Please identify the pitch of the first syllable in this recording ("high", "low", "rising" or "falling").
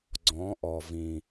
rising